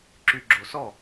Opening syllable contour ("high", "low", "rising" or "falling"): low